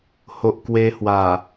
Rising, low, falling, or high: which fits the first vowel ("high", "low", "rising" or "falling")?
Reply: low